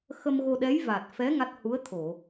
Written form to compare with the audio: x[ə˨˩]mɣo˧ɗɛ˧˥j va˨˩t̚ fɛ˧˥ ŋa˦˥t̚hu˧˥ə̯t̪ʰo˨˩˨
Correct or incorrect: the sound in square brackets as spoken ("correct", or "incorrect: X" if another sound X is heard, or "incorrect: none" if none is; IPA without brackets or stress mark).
incorrect: ə˧